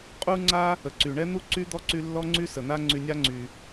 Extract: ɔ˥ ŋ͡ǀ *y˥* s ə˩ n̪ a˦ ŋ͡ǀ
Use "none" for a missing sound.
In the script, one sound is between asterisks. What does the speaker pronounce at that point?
y˦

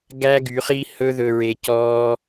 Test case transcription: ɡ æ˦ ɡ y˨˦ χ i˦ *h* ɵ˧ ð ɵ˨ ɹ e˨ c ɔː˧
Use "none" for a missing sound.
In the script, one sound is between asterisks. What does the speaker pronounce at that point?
h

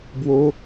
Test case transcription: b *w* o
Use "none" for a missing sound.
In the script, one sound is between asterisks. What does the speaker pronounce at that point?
w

